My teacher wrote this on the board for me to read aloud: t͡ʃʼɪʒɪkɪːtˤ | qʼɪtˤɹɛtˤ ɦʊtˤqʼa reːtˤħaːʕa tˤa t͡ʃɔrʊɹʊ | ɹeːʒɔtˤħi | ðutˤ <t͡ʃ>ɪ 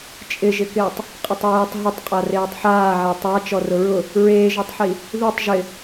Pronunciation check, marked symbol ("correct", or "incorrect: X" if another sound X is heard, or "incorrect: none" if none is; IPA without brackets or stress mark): incorrect: ʒ